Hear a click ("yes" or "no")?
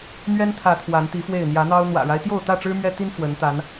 no